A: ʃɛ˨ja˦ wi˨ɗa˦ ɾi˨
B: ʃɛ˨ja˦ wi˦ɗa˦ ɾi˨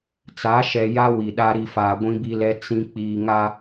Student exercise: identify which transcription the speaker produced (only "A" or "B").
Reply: A